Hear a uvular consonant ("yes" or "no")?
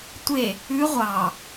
yes